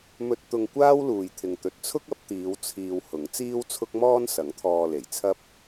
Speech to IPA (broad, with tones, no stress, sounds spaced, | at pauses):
m ɵ˥ t̚ t̪ ʊ˧ ŋ kʷ aː˥ w l uː˨ j t̪ʰ ɪ˨ ŋ t̪ ɵ˨ t̚ t͡sʰ ʊ˥ k̚ ɐ˨˥ p̚ t̪ iː˨˧ w t͡sʰ iː˧ w h ʊ˨˥ ŋ t͡s iː˥ w t͡sʰ ʊ˥ k̚ m ɔː˥ n s ɐ˨˥ ŋ t̪ʰ ɔː˧ l e˨˩ j t͡sʰ ɐ˥ p̚